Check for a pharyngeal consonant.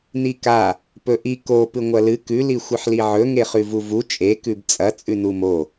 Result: present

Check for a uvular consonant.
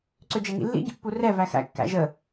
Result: absent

